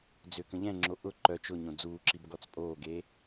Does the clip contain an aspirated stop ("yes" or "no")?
no